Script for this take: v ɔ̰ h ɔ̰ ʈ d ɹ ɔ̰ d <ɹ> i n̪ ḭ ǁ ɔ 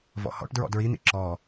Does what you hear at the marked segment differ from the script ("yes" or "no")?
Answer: no